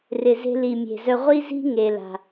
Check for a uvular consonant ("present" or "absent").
present